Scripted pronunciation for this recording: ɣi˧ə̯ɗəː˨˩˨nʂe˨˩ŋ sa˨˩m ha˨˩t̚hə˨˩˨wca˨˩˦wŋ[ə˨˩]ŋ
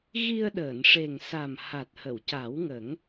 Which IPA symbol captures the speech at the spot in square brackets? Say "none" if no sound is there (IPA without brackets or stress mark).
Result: ə˨˩˦